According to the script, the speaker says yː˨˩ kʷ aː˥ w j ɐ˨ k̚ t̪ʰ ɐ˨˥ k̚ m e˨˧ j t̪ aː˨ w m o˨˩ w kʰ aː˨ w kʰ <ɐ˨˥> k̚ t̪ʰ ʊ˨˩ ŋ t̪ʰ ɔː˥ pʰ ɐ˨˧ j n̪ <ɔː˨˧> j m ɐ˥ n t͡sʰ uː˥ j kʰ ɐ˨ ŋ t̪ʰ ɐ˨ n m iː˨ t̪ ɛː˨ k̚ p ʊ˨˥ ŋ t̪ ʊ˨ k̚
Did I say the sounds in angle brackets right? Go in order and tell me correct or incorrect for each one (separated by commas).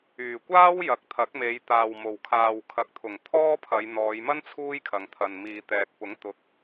incorrect, correct